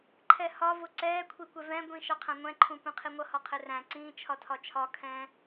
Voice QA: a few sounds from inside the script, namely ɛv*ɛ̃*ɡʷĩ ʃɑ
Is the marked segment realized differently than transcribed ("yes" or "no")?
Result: no